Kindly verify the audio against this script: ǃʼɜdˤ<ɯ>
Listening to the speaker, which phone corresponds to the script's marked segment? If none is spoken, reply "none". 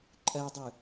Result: ɯ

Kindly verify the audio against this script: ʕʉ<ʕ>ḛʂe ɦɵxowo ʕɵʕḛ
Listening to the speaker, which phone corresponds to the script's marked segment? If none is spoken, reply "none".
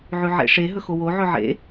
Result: ʕ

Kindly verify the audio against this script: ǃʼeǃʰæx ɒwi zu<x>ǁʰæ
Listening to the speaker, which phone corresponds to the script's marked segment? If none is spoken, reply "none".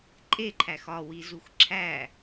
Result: x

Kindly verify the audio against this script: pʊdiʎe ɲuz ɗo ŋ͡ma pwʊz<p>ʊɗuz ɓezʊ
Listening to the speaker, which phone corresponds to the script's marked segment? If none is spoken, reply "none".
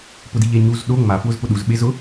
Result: p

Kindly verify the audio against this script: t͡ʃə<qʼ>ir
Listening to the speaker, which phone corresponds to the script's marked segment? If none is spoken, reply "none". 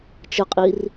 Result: qʼ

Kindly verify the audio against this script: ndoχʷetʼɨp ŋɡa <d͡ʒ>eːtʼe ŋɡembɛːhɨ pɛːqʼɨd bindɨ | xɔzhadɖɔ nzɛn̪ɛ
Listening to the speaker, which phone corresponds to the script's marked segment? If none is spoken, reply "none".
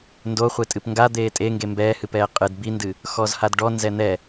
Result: d̪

